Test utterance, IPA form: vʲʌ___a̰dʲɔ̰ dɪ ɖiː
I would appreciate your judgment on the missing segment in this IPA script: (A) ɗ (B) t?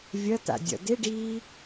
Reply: B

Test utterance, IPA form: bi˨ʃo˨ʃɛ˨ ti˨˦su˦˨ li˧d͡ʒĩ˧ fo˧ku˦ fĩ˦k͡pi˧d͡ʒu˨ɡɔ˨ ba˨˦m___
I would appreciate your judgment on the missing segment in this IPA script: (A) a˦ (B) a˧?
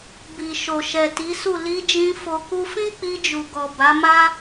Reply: A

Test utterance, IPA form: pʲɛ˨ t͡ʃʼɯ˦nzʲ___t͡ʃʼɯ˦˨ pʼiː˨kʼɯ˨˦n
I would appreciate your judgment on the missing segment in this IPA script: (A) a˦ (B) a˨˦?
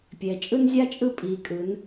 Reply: A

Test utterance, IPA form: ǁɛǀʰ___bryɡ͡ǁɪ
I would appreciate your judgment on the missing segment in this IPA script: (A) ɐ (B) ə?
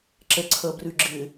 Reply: A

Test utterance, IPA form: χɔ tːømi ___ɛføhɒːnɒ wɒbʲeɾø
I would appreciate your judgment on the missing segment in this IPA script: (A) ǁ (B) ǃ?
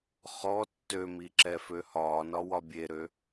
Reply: A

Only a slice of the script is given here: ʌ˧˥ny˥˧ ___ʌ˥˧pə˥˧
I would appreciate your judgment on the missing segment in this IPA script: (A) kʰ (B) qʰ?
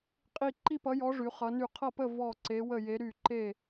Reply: B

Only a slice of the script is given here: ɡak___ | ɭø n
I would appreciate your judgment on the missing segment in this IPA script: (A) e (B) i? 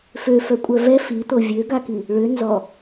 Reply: B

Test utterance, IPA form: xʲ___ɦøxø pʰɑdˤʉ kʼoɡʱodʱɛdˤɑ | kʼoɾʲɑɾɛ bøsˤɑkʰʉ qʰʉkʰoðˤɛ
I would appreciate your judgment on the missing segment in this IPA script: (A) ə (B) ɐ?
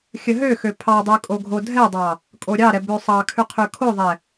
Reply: A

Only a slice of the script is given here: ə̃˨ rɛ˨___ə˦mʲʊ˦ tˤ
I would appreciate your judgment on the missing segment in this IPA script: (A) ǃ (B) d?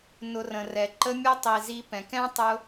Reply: A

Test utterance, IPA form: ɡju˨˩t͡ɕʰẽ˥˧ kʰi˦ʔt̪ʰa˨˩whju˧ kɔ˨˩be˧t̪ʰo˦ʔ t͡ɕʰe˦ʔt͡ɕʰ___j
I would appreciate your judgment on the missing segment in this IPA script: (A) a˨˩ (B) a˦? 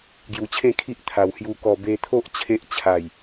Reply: A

